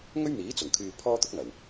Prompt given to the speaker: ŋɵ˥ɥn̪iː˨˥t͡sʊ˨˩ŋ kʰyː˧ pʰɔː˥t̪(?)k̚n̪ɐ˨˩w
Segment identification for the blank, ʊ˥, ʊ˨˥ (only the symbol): ʊ˥